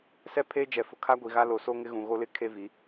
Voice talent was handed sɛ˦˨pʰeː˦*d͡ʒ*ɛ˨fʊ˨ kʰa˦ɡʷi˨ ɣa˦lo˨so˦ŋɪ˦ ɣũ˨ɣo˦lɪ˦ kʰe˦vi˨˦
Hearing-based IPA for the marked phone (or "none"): d͡ʒ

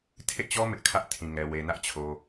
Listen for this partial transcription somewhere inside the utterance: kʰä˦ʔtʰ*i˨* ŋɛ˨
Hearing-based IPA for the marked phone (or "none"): ĩ˨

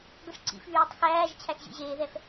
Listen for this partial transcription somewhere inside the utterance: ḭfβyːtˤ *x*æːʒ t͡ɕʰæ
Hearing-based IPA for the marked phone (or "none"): x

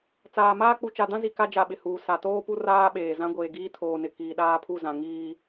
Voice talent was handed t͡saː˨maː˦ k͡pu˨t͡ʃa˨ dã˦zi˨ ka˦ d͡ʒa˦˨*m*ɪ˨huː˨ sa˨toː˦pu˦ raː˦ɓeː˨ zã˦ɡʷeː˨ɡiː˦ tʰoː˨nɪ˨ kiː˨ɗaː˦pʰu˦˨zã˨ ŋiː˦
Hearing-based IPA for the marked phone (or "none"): ɓ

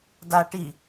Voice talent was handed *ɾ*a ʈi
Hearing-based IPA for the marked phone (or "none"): d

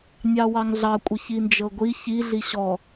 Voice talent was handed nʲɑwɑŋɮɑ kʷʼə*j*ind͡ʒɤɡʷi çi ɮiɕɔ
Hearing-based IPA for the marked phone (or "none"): ç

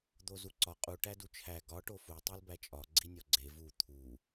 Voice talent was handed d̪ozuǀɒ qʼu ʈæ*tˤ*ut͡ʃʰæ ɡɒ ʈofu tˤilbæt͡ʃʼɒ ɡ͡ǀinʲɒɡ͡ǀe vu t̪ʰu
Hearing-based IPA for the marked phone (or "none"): d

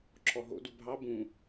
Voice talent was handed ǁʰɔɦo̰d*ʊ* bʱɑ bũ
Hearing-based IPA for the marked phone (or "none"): u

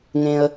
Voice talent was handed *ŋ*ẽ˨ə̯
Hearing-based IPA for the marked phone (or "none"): ŋ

